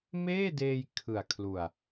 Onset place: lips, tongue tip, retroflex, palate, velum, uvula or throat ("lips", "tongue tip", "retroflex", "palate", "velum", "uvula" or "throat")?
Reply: lips